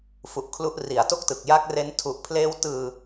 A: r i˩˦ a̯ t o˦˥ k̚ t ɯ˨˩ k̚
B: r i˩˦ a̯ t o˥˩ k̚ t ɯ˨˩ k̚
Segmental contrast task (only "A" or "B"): B